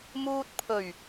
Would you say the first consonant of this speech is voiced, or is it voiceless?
voiced